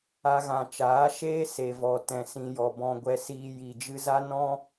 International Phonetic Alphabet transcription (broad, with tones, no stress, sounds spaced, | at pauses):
a˦ ɣ ã˧ t͡ʃ aː˨˦ ʃ eː˦ s e˨ v ɔ˨ t ɛ̃˨ s ĩ˨ j ɔ˨ b ɔ̃˧ ɡʷ ɛ˧ s iː˧ j i˨ d͡ʒ ɨ˧ z a˦ n ɔ̃˦